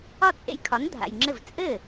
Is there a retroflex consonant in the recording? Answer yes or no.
no